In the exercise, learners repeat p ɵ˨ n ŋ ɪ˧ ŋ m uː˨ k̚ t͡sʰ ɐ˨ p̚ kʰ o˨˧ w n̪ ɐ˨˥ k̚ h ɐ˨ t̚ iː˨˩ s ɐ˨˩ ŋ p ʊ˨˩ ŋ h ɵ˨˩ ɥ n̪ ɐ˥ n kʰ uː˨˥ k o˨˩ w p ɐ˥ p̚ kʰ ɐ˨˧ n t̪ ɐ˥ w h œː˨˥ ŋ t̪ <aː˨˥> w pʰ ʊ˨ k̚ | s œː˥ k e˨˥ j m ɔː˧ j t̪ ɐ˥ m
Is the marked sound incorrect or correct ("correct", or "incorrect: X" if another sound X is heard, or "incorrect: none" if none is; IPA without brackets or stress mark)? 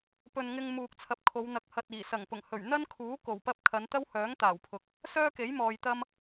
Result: incorrect: aː˨˩